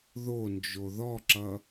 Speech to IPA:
ð o n d͡ʒ o ð ɔ ǁ ʌ

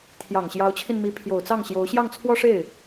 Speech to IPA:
t̪ʰ j ɑ˨˩ ŋ ɕ j ɑ˧˥ ʊ̯ t͡ɕʰ i˧ n m i˧˥ pʰ j o˨˩ ʊ̯ t͡s ɑ˥˩ ŋ ɕ j o˧˥ ʊ̯ ɕ j ɑ˥˩ ŋ t͡sʰ w ɔ˥ ʂ e˥˩ ɪ̯

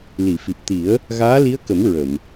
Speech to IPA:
l i˨˩˨ f i˨˩ p̚ t̪ i˨˩˦ ə̯ | ɣ aː˧˥ l i˧˥ ə̯ k ə˨˩˦ m ɹ ə˨˩˨ m

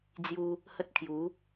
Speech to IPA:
d͡z j u˧ | h ə˦ t̚ kʰ j u˨˦

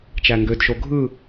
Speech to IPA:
t͡ʃ æ ŋ ɡ ø d ʃ o ɡʱ ɯ

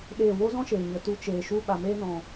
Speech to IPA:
ɗ eː˦˨ w o˦ z ɔ̃˦ ʃ eː˨ ɲ ə˨ t u˦ t͡ʃ eː˨ ʃ u˦ ɓ a˨ m eː˦ n ɔ̃˨

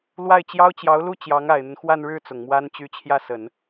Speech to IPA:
l w a˥˩ ɪ̯ t͡ɕ j ɑ˥ ʊ̯ t͡ɕ j ɑ˧˥ ʊ̯ l u˥˩ t͡ɕ j ɑ˧˥ ŋ a˨˩ ɪ̯ n̪ ə˦ n x w a˥˧ n ɻ ɻ̩˥˩ t͡s ʊ˨˩ ŋ m w a˥ n t͡ɕ y˥˧ t͡ɕʰ j ä˥˩ s ə˨˩˦ n

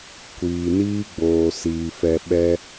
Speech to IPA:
kʷ iː˨ n iː˦ ɡ͡b oː˨ s iː˧ f ɛ˧ ɓ ɛ˦

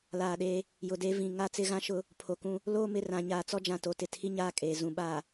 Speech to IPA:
l aː˨ ɗ eː˦ | j ʊ˨ d eː˦ v ĩ˨ ŋ a˦ t͡s ɪ˦ ɣ ã˦ ʃ ʊ˦ | pʰ o˨ k ũ˦ | l oː˦ m ɪ˨ r ã˨ ɲ aː˨ t͡s ɔ˦ d͡ʒ ã˨ t o˨ t ɪ˨ tʰ i˦ ɲ aː˦˨ kʼ eː˨ z ũ˨ ɓ aː˨

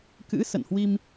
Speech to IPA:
k ɨ̰˧˥ s ə̰˧˨ n h w i˧ m

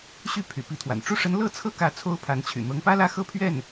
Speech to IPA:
ɕ y˥˩ pʰ y̰˨˩ p i˧˥ t̪ʰ w a̰˨˩ n ʈ͡ʂ u˥˩ ʂ ə˧˥ n l ɤ˥ t͡sʰ ɤ˥ k ä˧˥ t͡sʰ o˥ ʊ̯ pʰ a˧˥ n t͡ɕʰ y̰˨˩ n̪ ɤ˧˥ ŋ p ä˥ l ä˥˧ x ɤ˥˧ pʰ ɥ ɛ˥˩ n

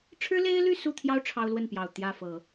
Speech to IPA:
ʈ͡ʂʰ ɻ̩˥ l e˥ ɪ̯ l y˥˧ s u˥˩ t̪ʰ j ɑ˥ ʊ̯ ʈ͡ʂʰ ɑ˥ ʊ̯ l w ə˥˩ n p j ɑ˨˩ ʊ̯ t̪ j ä˥˩ f ɤ˨˩˦

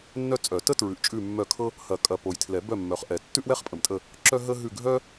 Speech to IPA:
nː œ˥ t͡sʼ œ˨˩˦ t ə˥ t ɹ ʉ˨ ʔ t͡ʃʼ ʉ˦˨ mː œ˦˨ kʰ ɤ˥ | h ɐ˨˩˦ kʼ ɐ˨ p o˨ j tʰ l ɛ˨˩˦ b œ˦˨ mː œ˨ χ ʔ ɛ˨˩˦ tː ʉ˥ ʔ w ɛ˥ χ pʼ ə˨ m tʼ ə˦˨ | ǁ œ˥ ɦ ə˥ ɦ ʉ˦˨ ɡʱ œ˥

